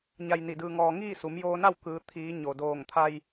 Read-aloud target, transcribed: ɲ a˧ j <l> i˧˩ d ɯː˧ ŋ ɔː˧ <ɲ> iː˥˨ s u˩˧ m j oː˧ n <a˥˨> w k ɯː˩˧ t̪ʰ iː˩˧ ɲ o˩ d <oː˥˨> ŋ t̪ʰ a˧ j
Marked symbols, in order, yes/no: no, no, yes, no

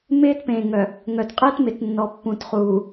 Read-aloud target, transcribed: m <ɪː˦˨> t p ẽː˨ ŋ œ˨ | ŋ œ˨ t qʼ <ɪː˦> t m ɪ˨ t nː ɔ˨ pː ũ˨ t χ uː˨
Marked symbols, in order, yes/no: no, yes

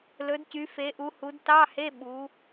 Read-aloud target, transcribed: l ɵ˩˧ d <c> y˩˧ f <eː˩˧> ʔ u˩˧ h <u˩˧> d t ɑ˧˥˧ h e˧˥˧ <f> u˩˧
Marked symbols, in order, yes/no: yes, no, yes, no

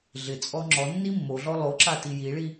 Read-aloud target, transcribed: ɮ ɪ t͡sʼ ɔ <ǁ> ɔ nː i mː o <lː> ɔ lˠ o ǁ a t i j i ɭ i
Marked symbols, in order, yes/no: no, no

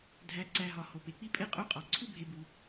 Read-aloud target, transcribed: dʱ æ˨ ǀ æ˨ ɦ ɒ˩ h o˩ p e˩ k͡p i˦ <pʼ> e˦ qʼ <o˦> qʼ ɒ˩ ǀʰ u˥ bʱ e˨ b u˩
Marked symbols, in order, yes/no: yes, yes

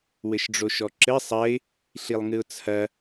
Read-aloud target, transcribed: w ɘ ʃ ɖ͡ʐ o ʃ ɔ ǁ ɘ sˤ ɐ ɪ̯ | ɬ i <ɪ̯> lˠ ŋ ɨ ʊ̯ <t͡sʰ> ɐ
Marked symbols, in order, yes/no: no, yes

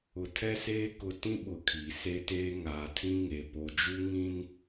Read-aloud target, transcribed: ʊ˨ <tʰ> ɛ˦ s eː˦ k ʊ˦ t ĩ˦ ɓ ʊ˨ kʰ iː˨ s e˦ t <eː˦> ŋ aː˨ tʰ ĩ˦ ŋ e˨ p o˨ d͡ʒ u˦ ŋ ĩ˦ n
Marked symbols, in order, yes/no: yes, yes

